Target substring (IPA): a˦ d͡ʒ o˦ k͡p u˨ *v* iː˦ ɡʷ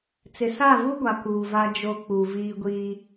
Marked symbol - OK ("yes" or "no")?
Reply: yes